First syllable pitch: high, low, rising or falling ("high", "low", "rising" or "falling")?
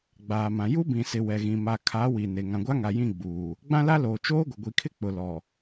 low